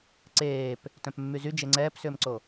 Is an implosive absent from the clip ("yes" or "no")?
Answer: yes